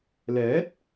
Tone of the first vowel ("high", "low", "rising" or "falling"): rising